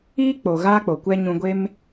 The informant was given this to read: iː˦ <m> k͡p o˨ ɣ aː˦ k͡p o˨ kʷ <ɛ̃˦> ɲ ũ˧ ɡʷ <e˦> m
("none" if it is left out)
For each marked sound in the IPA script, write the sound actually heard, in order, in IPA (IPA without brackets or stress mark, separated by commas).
none, ɛ˦, e˦